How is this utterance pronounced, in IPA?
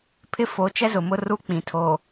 pʰ ɪ˦ f o˨˦ t͡ʃ ɛ˦ z ʊ˨ m ʊ˦ r u˦ k͡p ĩ˨ tʰ o˨

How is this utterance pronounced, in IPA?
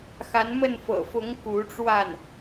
x a˧˥ n m ə˥˩ n f ɤ̰˨˩ f ʊ˧˥ ŋ k u˧˥ ʈ͡ʂ w a˥˩ n

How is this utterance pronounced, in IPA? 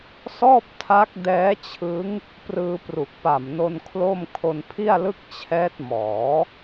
s ɔː˥˩ p̚ tʰ a˦˥ k̚ d ɛː˦˥ t͡ɕʰ ɯ˦˥ ŋ | p r ɯː˧ p r u˨˩ k̚ p a˨˩ m n o˧ n kʰ l o˥˩ m kʰ o˧ n pʰ i˥˩ a̯ l ɯ˥˩ k̚ t͡ɕʰ ɛː˦˥ t̚ m ɔː˩˦

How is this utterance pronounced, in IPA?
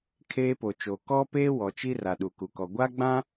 kʰ eː˦ p o˨ t͡ʃ o˨ k ɔ˦ p eː˦ w ɔ˨ t͡ʃ i˦ r a˨ ɗ u˨ k u˨ k ɔ˨ ɡʷ a˦ ɡ͡b ã˦

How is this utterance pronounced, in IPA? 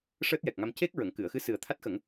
ʂ əː˦˥ t̚ j ɛ˨˩ k̚ ŋ a˧ m c e˦˥ k̚ ɹ ə˨˩˨ ŋ k ɨ˨˩˨ ə̯ x ɨ˧˥ s ɨ˨˩ ə̯ t̪ʰ a˦˥ t̚ x ə˨˩˦ ŋ

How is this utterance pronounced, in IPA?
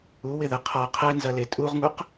u w ɪ ð ɛ qʰ ɔ qʰ ɛ n z ɐ l e tʼ u ʁ ŋ u q

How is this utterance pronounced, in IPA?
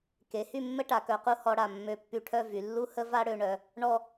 k e˩˧ h y˥˧ mː ə˥ ʈ a˩˧ k œ˩˧ q u˧ h ɔ˧ ɽ a˧˩ mː ø˧˩ pː y˧˩ ʈʰ œ˥˧ v y˩˧ lː u˥ h ə˥ v a˥ ɽ ø˩˧ ɳ œ˩˧ | ɳ ɔ˥˧

